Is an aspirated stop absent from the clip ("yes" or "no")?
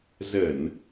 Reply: yes